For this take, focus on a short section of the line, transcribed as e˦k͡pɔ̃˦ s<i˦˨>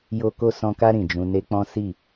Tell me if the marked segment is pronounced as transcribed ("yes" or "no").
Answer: yes